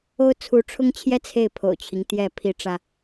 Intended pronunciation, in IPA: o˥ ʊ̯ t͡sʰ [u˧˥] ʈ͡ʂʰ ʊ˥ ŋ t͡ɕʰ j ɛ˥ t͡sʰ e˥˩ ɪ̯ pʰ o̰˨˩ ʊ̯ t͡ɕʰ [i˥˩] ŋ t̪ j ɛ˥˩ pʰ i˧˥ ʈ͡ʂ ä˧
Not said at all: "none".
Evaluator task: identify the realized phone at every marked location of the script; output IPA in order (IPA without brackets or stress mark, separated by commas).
u˧˥, i˦